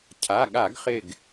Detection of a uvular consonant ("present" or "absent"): present